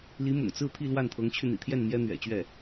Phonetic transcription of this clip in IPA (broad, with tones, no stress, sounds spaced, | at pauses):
l i˧˥ m ʊ̰˨˩ ŋ t͡s ɹ̩˥˧ t̪ʰ i˥˧ l w a˥˩ n t̪ʰ ɤ˧˥ ŋ t͡ɕʰ y˧ n̪ ḭ˨˩ t̪ʰ j ɛ˥˩ n m j ɛ˥ n̪ ɥ ɛ̰˨˩ t͡ɕ ɥ ɛ˥˩